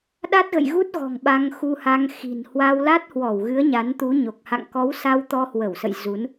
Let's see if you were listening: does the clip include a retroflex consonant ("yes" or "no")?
no